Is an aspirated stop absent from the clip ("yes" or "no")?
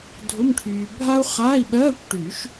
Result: no